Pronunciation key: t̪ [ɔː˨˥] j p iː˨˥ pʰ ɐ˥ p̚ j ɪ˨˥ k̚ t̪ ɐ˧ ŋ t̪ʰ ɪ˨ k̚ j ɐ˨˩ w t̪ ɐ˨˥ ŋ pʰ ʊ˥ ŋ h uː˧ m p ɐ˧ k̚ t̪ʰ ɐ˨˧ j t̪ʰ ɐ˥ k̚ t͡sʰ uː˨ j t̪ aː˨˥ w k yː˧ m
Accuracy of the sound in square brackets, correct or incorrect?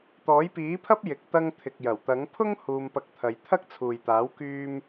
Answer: correct